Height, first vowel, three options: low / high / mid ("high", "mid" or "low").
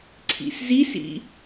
high